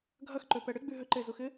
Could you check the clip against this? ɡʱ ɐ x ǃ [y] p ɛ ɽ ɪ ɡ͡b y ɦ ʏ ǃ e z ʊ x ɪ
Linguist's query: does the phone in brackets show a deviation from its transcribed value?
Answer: yes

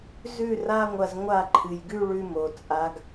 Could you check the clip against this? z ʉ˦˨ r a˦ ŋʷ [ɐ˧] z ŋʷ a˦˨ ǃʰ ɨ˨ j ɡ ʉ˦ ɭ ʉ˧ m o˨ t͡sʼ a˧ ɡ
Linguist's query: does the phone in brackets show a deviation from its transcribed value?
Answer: no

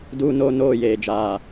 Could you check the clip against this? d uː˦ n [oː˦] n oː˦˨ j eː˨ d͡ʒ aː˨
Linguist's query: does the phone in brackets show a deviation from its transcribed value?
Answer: no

